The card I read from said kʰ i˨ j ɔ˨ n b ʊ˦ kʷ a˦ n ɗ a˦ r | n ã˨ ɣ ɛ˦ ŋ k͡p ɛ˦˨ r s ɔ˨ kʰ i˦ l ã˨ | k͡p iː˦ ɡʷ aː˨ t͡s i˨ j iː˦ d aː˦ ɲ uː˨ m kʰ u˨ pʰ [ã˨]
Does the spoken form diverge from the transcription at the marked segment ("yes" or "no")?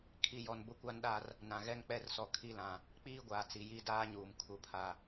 yes